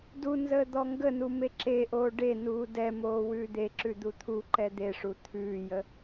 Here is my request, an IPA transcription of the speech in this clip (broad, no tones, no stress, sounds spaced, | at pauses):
d u n z əː d̪ ɔ ŋ ɡ ə n u m e ǁ e ʔ oː ɖ e n uː d ɛ m oː w ʉː d̪ e ǁ ʉ d̪ u t̪ʰ u ǃ ɛ d̪ e ʂ u t̪ʰ ʉː j ə